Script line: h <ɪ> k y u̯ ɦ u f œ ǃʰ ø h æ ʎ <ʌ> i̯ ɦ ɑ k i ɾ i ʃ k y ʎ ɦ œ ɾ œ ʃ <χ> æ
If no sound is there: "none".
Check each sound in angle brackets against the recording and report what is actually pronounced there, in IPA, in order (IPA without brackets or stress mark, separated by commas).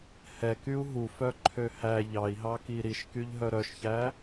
ɛ, ɑ, ç